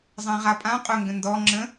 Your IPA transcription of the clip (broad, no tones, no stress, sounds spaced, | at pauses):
zˤ ã ʁ a pʼ ã qʼ ʊ ŋ ɡ ə̃ n d ɔ ŋ͡ǁ ə̃